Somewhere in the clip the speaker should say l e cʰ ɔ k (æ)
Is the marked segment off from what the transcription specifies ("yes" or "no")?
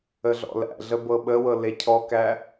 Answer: no